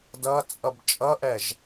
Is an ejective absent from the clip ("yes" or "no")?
no